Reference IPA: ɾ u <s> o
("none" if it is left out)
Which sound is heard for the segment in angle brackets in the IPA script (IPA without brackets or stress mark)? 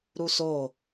s